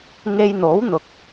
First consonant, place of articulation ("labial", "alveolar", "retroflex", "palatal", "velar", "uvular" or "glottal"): velar